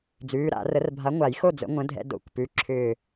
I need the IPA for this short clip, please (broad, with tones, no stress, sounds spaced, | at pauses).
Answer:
d͡z ʉː˩˧˩ ɾ a̰˨˩˦ r ə˨˥ r bʱ a˨˥ ŋʷ a˨˩˦ j x o˥˨ d͡z ə̰˨˥ ŋʷ ə̃˨˥ dʱ ɛ̰˧ d o̰˨˥ kʷ p ʉ˩˧˩ ǁʰ ʏː˧˩